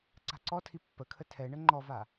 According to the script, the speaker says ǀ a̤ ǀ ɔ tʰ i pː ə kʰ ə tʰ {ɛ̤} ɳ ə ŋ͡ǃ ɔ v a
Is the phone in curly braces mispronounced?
yes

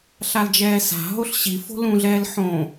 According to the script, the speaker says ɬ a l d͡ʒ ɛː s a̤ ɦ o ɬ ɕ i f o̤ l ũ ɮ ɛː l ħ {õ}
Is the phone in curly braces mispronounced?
no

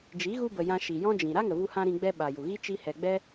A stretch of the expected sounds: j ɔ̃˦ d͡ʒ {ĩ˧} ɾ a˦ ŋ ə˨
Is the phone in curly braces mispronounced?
yes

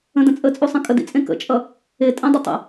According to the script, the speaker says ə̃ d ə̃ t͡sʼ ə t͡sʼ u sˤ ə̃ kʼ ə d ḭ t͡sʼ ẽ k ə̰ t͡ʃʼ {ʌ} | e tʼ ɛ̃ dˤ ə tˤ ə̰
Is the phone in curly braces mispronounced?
no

